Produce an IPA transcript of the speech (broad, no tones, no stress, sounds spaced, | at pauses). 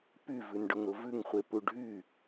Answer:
p y v ʉ n ɖ ʊ ŋ ɾ ʊ v ʉ ŋ χʷ e p u ɖʱ y